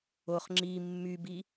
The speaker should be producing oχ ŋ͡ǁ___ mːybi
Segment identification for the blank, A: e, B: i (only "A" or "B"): B